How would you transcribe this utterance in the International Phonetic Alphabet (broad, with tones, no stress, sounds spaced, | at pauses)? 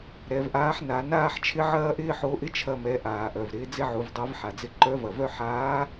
ɾ ɛ˩˧ v ʔ aː˧˥ ħ n a˩˧ n aː˥ ħ t͡ʃʰ ɪ˥ ʕ ɐː˥ ʔ ɪː˥ ħ o˧˥ ʔ ɪ˥ t͡ʃʰ ɐ˧ m ɛ˩˧ ʔ aː˩ ʔ œ˩ v ɾ ɪː˩˧ d͡z ɪ˥ ʕ u˩˧ v dˤ ɛ˧˥ v ħ a˩ d͡z ɪ˧ ǃ œ˧˥ v ɐ˩ v œ˥ ħ aː˧˥